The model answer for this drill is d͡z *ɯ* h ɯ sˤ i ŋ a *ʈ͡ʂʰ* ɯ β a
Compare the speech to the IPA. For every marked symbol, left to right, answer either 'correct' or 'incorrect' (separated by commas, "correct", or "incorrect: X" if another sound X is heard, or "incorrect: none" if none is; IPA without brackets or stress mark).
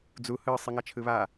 incorrect: u, incorrect: t͡ʃʰ